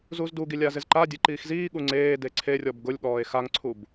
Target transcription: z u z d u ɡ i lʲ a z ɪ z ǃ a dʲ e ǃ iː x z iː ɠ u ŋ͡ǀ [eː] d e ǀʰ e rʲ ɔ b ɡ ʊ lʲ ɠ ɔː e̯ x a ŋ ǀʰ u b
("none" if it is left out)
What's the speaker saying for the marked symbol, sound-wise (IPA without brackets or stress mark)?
eː